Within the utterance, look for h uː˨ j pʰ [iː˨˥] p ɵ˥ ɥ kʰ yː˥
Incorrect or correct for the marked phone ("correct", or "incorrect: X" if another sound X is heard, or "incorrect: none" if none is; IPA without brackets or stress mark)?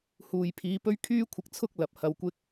correct